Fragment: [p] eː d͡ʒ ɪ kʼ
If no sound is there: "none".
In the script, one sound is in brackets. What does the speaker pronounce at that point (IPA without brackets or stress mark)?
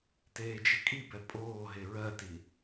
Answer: t